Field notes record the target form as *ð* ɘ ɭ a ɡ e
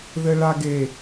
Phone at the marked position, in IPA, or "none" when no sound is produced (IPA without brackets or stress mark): ð